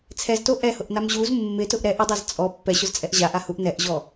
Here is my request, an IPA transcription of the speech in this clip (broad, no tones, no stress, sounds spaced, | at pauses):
t͡sʰ ɛ z t o ʔ ɛ h ʊ ʔ n a m ʑ u z mː ɪ t ʊ ʔ ɾ ɛ ʔ ɪ dˤ ɛ z t͡sʼ ɔ pː ɛ ɕ ʊ z t͡sʼ ɛ ʔ ʑ a ʔ a h u ʔ n ɛ ʔ ʑ ɔ